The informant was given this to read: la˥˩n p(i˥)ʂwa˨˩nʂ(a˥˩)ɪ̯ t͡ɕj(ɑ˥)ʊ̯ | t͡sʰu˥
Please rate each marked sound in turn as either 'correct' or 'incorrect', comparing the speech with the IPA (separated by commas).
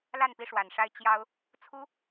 correct, incorrect, correct